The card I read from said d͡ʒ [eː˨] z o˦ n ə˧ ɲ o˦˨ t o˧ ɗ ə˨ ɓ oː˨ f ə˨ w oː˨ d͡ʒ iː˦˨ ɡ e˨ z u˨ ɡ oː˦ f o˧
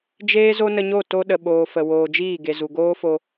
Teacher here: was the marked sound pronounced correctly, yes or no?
no